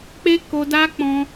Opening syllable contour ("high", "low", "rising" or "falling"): high